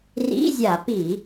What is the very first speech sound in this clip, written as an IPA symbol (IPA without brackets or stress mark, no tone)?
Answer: r